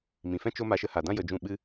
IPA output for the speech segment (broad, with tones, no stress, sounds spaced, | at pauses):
m ĩ˨ f ɛ̃˦ t͡ʃ o˦ m a˧ ʃ ə˧ h a˨ d ã˦ j ə˧ d͡ʒ ũ˦˨ ɓ ɨ˦